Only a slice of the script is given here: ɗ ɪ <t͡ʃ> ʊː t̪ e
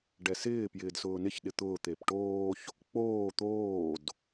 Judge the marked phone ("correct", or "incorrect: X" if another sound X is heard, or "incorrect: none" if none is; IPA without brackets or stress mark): incorrect: t̪